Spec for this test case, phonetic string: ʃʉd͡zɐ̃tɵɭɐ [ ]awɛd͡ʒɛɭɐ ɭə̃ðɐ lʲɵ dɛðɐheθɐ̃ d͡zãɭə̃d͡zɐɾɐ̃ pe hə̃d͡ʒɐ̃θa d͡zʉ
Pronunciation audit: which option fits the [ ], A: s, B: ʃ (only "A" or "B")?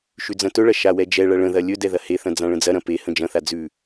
B